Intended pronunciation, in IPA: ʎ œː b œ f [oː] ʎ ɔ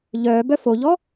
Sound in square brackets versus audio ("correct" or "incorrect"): incorrect